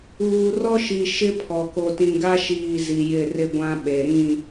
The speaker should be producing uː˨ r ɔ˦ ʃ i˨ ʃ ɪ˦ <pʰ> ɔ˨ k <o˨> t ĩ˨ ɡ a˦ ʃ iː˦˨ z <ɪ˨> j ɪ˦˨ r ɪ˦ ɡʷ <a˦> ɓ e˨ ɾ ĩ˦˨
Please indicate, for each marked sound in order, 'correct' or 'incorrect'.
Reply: correct, correct, incorrect: i˨, incorrect: ã˦

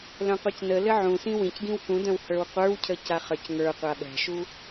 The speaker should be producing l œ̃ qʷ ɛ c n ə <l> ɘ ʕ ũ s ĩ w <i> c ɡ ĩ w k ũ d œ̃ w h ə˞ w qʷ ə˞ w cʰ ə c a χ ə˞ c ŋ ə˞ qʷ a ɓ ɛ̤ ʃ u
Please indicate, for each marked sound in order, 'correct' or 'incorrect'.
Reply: correct, incorrect: ĩ

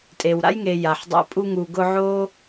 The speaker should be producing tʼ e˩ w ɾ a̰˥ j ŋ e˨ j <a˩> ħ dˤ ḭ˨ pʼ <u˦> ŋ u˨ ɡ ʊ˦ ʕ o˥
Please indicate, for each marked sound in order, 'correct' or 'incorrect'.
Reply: correct, correct

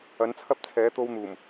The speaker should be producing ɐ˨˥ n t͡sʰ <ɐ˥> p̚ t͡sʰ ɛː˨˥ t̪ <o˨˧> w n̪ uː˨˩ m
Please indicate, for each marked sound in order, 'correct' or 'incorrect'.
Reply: correct, incorrect: o˧

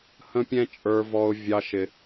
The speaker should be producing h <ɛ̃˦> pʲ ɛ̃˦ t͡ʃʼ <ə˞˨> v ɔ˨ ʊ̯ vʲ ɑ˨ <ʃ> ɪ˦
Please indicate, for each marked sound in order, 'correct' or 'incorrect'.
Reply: incorrect: ə̃˦, correct, correct

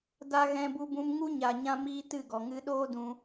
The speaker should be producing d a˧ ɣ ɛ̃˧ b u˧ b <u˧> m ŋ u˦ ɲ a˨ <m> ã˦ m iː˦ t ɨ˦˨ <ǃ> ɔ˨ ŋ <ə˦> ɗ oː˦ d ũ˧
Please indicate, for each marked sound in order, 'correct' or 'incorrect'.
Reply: incorrect: ũ˧, incorrect: ɲ, incorrect: ɡ, incorrect: ɨ˦

